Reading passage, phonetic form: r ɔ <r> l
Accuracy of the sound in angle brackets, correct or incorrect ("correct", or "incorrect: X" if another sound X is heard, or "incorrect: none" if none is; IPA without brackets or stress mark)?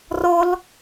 incorrect: none